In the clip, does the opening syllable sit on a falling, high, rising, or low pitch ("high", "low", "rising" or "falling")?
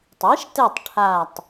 rising